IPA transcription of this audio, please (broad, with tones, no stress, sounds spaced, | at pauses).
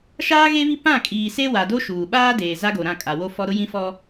ʃ aː˦ ɣ e˦ β i˦ p ã˦˨ kʼ iː˨ s e˦ w a˨ d o˦ ʃ uː˨ ɓ aː˦ d eː˨ z a˦ ɡ o˨ ɾ ã˦˨ kʼ a˨ w o˦ f ɔ˦ ɾ ʊ˦ j ĩ˦ f ɔ˦